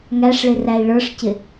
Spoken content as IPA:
ŋ æ ʂ ɭ ɪ r æ i̯ ɭ ə˞ ʂ c ɪ

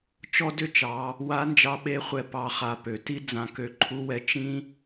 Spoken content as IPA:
t͡ʃ ɔ˥ d ʏ˥ t͡ʃ ɑ˩˧ | w a˧˥ n d͡ʒ ɑ˧ ɓ e˧˥ χʷ ɛ˧ p ɑ˧ χ a˧ p ø˩ t i˥ d͡z ã˧ k ø˧˥ ǃʰ u˥ w ɛ˥ t͡ʃ ĩ˥

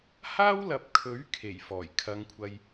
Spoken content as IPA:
h aː˥ w l ɐ˨˥ p̚ kʰ ɵ˨˥ ɥ kʰ e˨˩ j f ɔː˨˩ j kʰ ɐ˨˧ ŋ kʷʰ ɐ˧ j

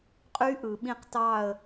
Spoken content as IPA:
qʼ y˦˥ ʔ ɯ˨ ɓ ĩ˥˧ q t ɑ˥˧ ə̯

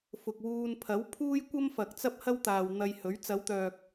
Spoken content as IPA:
f ʊ˨ k̚ w uː˧ n pʰ ɐ˨˥ w pʰ uː˥ j kʷ ɐ˥ m f ɐ˨ k̚ t͡s ɐ˥ p̚ h ɐ˥ w t̪ aː˨ w n̪ ɐ˧ j h ɵ˨˥ ɥ t͡s ɐ˨˧ w t̪ œː˨ k̚

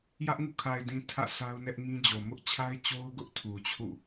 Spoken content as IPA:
j ä˦ ʔ ŋ ṵ˦˨ kʰ a˨ ɪ̯ d ĩ˨ tʰ ä̰˦˨ sʰ a˦ ʊ̯ n ɛ˦ ʔ ŋ ĩ˦ d͡ʑ o˨ m ʊ˦ ʔ t͡ɕʰ a˦ ɪ̯ t͡ɕ o˦ ʊ̯ ɡ ʊ˦ ʔ tʰ u˨ t͡ɕʰ ṵ˦˨

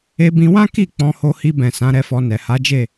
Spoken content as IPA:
e˧ b ĩ˧ w ã˦ k i˦˨ k͡p ɔ̃˧ h o˧ h i˧ b ɛ̃˨ s ã˨˦ ɾ ɛ˧ f ɔ˧ n ɛ˨ h a˨˦ d͡ʒ e˦˨

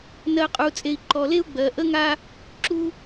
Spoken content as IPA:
n ɜ˨ qʼ u˨ t͡sʼ e˨ i̯ ǃ ɔ˨ l e˦ u̯ ɡ͡b ɜ˨ ʔ ə˦ ŋ a˦ | ǁ u˦

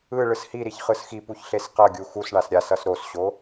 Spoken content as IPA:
ɯ ɭ ɯ s h i ɾ i ç χ ɯ s x i p u ç ɬ e s q ʌ ɡʲ u x u s ɳ a s ɾʲ a s ʌ s ɾ o s ɕ o

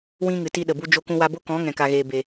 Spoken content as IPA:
w ĩ˦ ŋ ɨ˨ t i˦ ɗ ə˨ b u˦ d͡ʒ o˧ k ũ˧ w a˧ b o˦ k ɔ̃˨˦ ŋ ɛ̃˨ k a˨ ɣ eː˨ b e˨

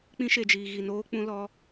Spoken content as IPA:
k͡p ĩ˧ ʃ e˨ d͡ʒ iː˨ ɣ i˨ n oː˧ k͡p ũ˧ l ɔ˧

